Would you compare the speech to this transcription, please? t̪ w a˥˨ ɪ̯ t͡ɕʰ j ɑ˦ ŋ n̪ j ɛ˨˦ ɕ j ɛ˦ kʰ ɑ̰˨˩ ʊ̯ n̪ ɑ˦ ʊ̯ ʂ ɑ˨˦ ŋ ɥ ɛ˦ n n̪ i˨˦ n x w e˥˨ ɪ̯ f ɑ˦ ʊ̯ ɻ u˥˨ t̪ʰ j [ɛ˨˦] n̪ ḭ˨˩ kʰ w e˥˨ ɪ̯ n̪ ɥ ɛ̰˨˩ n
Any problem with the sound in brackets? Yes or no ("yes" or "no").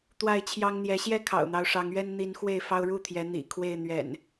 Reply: no